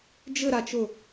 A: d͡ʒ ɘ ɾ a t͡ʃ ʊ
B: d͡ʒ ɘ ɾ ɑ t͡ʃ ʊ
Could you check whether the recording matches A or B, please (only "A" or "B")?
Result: A